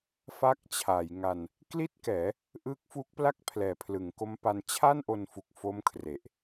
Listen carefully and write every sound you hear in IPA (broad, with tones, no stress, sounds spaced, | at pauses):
f a˦˥ k̚ t͡ɕʰ a˩˦ j ŋ a˧ n | k l i˥˩ t̚ k ɛː˩˦ | ʔ ɯː˦˥ k̚ f u˦˥ k̚ p l a˥˩ k̚ pʰ l ɛː˨˩ pʰ l ɯ˩˦ ŋ k o˦˥ m p a˧ n t͡ɕʰ a˥˩ n ʔ o˧ n f u˨˩ k̚ f o˦˥ m kʰ r e˨˩ ʔ